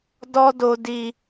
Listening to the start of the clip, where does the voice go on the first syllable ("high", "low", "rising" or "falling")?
high